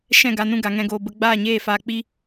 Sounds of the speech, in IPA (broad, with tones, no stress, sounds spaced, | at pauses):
ʃ ɛ̃˦˨ ɡ a˧ n ũ˧ ɡ a˨ ŋ ɛ̃˧ ɡ oː˧ b ə˧ ɡ͡b aː˦˨ ɲ eː˦˨ f aː˧ k͡p i˦